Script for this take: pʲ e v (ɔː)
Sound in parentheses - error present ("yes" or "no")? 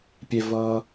yes